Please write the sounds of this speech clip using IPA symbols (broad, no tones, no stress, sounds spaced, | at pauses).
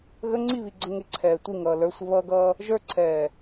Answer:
ɣ ə ŋ͡ǀ i β i ɡ͡ǀ ə ŋ ɪ ǀʰ ɛː tʷ i ŋ ʌː l ə˞ sʷ ə β ʌː ɡ ʌː | ʒ ə˞ ǀʰ ɛː